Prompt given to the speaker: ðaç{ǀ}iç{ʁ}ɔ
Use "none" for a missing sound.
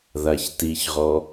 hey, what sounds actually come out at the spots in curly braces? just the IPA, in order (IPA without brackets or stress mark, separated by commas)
t, ʁ